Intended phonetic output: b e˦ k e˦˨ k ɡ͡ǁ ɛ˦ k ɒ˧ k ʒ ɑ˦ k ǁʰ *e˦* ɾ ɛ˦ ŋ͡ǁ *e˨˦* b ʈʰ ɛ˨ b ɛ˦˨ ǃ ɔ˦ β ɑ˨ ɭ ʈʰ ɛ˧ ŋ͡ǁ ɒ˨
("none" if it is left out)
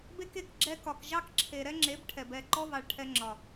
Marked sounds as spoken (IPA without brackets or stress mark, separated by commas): e˨, e˨˦